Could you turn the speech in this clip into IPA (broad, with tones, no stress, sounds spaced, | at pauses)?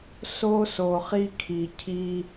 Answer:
s o˧ s o˩ χ i˧ kʰ i˩ cʰ i˧